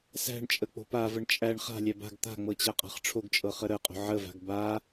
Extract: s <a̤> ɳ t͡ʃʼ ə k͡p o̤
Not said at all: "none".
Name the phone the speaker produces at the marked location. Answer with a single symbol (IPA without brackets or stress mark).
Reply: æ̤